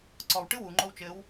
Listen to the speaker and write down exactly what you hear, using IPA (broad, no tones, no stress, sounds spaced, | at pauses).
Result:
ǀ ɔ w ʈ ɨ w u ŋ͡ǃ o w t͡ʃ ɘ w